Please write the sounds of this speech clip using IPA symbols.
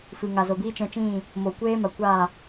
f ɨ˨ ŋ a˨ z o˨ b iː˦ t͡ʃ ɛ̃˧ t͡ʃ ĩ˦˨ | m o˨ kʷ eː˦ m a˨ kʷ a˦˨

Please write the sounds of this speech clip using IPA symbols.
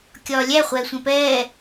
kʲ ɒː lʲ æ χʷ ɛː sʷ ɛ̃ p ɛː

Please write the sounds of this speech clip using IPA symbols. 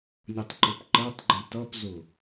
nʲ ʊ tˤ ǃ ʊ p ǃ ɜ tˤ ɡ͡ǃ i t ʌ p z ʊ

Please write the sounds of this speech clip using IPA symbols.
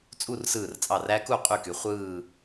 t͡sʼ u˥˨ r s ɯː˧˩ r t͡sʼ ɑ˧˩ r æ˦˥ k u˥˨ qʼ y˥˨ k y˨˦ χʷ ɯː˥˨

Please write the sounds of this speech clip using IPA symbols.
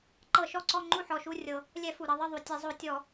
ǃ ɤ˧˩˧ ʃ ɔ˦˨ ǀ ɔ˦˨ ŋ͡ǃ u˦˨ ħ ɔ˨˩ ʃ u˦˨ rʲ ɤ˨˩ | lʲ ɛ˧˩˧ f u˨˩ ɾ ɤ˦˨ ðˤ ɯ˦˨ ðˤ u˨˩ tʲ e˧˩˧ zˤ o˧˩˧ tʲ ɔ˧˩˧

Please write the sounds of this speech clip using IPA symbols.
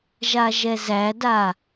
ʒ a ʒ ɛ z æ d a

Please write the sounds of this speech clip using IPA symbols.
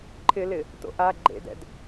ǃʰ ɪ l ɪ | t o̰ ʔ a ɡ͡ǃ ḛ d ɛ̰ d

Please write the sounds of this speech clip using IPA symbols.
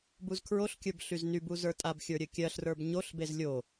b u z kʰ ɹ o ɬ kʲ ə˞ b ɬ y z n y b u z ə˞ tʼ a b xʲ ə˞ ɾʲ ɘ kʲ ɜ ɬ r ə˞ b ɲ o ɬ b e z lʲ o

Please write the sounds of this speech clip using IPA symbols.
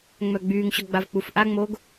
ŋ͡m œ ɡ͡b yː ŋ ɕ ɔ ɡ͡b a v k͡p u f ʔ a ŋ͡m oː ɡ

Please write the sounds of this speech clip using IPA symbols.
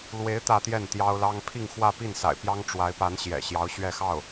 l w e˧˥ ɪ̯ t̪ ä˥˧ t̪ j ɛ˥˩ n t̪ j ɑ˥ ʊ̯ l ɑ˥ ŋ pʰ i˥˧ ŋ x w ä˥˧ p i˥˩ n s a̰˨˩ ɪ̯ p j ɑ˥ ŋ ʈ͡ʂ w a˧˥ ɪ̯ p a˧˥ n ɕ j ɛ̰˨˩ ɕ j ɑ˧˥ ʊ̯ ɕ ɥ ɛ˥˧ x ɑ˥˩ ʊ̯

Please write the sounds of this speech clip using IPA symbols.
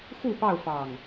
x u˥˨ p ɑ˥˨ ʊ̯ f ɑ˨˩ ŋ

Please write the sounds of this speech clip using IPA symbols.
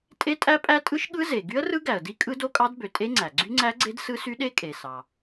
tʼ e˦˥ tʼ æ˦˥ pʼ æ˦˥ tʼ ɯ˦˥ ʃ ɠ ɯ˦˥ z e˩ ɡ y˦˥ ə̯ r ɯ˦˥ ɡ æ˩ ə̯ d i˦˥ kʼ ɯ˦˥ d o˦˥ kʼ ɑ˦˥ d b ø˩ tʼ e˦˥ ŋ͡ǀ æ˩ ɡ͡ǀ y˦˥ ŋ͡ǀ æ˦˥ ɡ͡ǀ e˦˥ d s ɯ˦˥ s y˦˥ ɗ e˦˥ kʼ e˩ s ɑ˩

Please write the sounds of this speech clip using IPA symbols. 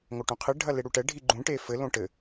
ŋ o ʈ ũ qʰ ɨ ɖʱ ɐ l e ɽ u ʈ ɛ ɖʱ i ɡ͡ǃ ũ ʈ e f ɘ l õ ʈ ɘ

